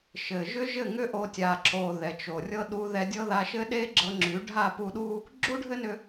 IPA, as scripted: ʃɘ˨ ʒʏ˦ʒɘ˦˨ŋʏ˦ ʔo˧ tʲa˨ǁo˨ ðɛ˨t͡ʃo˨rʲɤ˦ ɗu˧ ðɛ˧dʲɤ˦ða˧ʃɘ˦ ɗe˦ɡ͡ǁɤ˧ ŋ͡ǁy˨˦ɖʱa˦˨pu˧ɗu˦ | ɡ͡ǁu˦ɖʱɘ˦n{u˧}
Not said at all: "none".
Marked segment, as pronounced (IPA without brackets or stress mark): ʏ˧